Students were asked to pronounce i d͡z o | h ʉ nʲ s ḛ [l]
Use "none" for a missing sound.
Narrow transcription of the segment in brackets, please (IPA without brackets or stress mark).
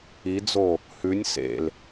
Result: l